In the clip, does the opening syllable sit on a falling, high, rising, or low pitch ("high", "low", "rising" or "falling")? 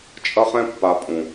high